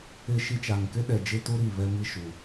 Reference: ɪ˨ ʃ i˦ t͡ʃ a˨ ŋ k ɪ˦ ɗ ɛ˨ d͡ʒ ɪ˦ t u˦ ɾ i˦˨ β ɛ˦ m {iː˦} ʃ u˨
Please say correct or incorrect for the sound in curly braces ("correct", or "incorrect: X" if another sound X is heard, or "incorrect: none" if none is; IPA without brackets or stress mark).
incorrect: i˦